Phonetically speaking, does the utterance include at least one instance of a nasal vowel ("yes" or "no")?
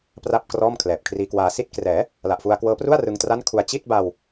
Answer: no